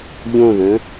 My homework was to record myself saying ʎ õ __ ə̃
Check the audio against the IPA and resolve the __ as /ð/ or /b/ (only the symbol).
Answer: ð